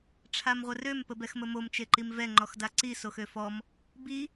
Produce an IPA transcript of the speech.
ʈ͡ʂʰ a m ʁʷ ə r ø m p ə b ɛ x m ə m o m t͡ʃ e ǃ i m v ɛ ŋ͡ǃ ɔ x d a ǀ i s o x ø f ɔ m | b i

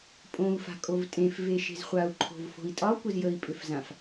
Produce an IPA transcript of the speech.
pʼ õ u̯ f a̤ kʼ o v tʼ ẽ f v e ʃ e̤ z χʷ a u̯ ǃʰ o̤ v f o̤ i̯ tʼ ɒ kʷ ə z j ə i̯ pʼ ʏ f z ã f

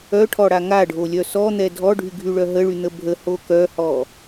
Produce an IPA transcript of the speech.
œ ʈʰ ɔ ɽ a ŋ a ɖʱ o lʲ œ s ɔ n̪ ɛ dʱ ɔ ɖʱ y ɡʱ y ɭ œ ɦ ə ɭ y n̪ ə bʱ ə h o k œ h ɔ

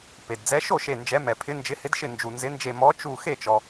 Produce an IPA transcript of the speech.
p e˩ d d͡z ɛ˨˦ ʃ o˥˨ ʃ e˧˩ n d͡ʒ ɛ˨˦ m ɛ˩ pʰ ɪ˨˦ n d͡ʒ ɪ˨˦ h ɪ˨˦ d ʃ ɪ˧˩ n d͡ʒ u˩ n z ɪ˨˦ n d͡ʒ e˧˩ m ɔ˨˦ t͡ʃ u˧˩ x e˥˨ t͡ʃ ɔ˩

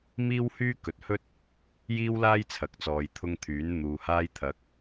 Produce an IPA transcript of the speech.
m iː˥ w h yː˥ k ɵ˨ t̚ h ɵ˥ t̚ | j iː˥ w l aː˥ j t͡sʰ ɐ˨ k̚ t͡s ɔː˨ j t̪ʰ ʊ˧ ŋ t̪ʰ yː˨˥ n n̪ uː˨ h aː˧ j t̪ʰ ɐ˨˥ k̚

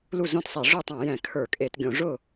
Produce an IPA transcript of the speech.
l u˥˩ z õ˥˩ t sˤ e˧˩˧ ʐ ʊ˥˩ tˤ ã˧˩˧ j ɛ̃˧˩˧ kʰ ə˞˧˩˧ kʼ e˧˩˧ t ɡʲ õ˧˩˧ ʐ ʊ˥˩

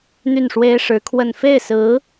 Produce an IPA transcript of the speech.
n̪ y˥˩ n ʂ w e˥ ɪ̯ ʂ ɻ̩˧˥ kʰ w ə˥˧ n f e˥˩ ɪ̯ s ɹ̩˧˥

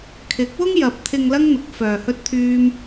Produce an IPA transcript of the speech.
kʰ ɪ˨˥ k̚ w ʊ˥ ŋ j ɐ˨ p̚ t̪ʰ ɪ˧ ŋ l ɐ˥ ŋ n̪ ʊ˨˥ k̚ f œː˨ h ɵ˥ t̚ t̪ʰ yː˥ m

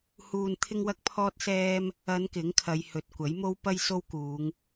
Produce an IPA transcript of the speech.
h uː˧ n t̪ʰ ɪ˥ ŋ w ɐ˥ k̚ pʰ ɔː˥ t̚ s ɛː˥ m | ɐ˨˧ n k ɪ˨˥ ŋ kʰ ɐ˨˧ j h ɵ˨ t̚ kʷ ɐ˨˥ j m o˥ w p ɐ˥ j s o˥ w k uː˨˧ ŋ

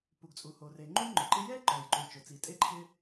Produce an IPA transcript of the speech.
p u˩ ɡ t͡sʼ u˩ h o˩ r e˩ ŋ͡ǃ u˥ j ŋ͡ǃ ʊ˩ ǃ ɪ˥ j ɛ˥ ǃ ɔ˩ j ǃ u˩ t͡ʃ ʊ˩ t͡s i˩ tʼ e˥ ǃʰ ɪ˥

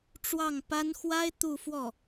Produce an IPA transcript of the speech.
ʈ͡ʂ w ɑ˥˩ ŋ p a˥ n x w a˥ ɪ̯ t̪ u˥˧ f w ɔ˥˩

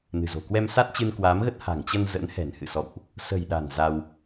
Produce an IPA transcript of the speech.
n ɨ̤˨˩ z o̤˨˩ k w ɛ˧ m s a˦˥ t̚ t͡ɕ ɨ˧ n k w aː˨˦ m ɣ ə˦˥ t̚ h a̤˨˩ ŋ t͡ɕ ə˧ n z ə̰˧˥ n h ɛ̤˨˩ n h ɨ̰˧˨ s ɔ̰˧˨ w ʔ | s ə̤˨˩ j ɗ a̤˨˩ n z a˧ w

